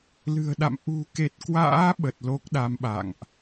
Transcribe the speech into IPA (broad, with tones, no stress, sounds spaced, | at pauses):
l ɨ̤˨˩ ə̯ ɗ a̰˧˨ m ʔ ṳ˨˩ k e˨˩ t̚ k w a̰ː˧˥ ɓ ə˨˩ t̚ l o˦˥ k̚ ɗ a˨˦ m ɓ a̰˧˨ ŋ ʔ